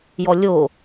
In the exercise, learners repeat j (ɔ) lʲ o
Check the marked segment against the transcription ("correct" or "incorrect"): correct